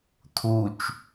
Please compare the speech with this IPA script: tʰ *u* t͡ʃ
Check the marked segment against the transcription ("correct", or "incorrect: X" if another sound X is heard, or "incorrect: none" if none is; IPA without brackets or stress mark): correct